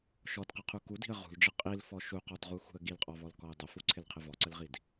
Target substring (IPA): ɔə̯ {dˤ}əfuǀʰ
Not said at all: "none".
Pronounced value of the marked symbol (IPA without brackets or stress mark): dˤ